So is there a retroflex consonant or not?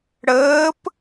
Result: yes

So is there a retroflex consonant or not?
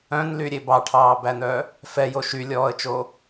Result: yes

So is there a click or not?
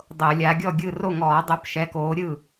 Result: no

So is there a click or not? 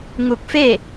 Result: no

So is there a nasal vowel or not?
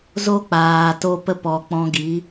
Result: yes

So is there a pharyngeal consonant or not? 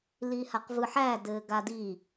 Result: yes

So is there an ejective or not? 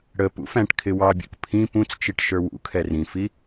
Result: no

